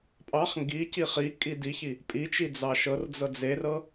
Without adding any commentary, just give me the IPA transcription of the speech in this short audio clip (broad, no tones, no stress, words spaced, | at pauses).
pʼɑχ ŋɡici χikʼi diçi | pʼit͡ʃi d͡zɑʃɤrd͡zɤ d͡zerɤ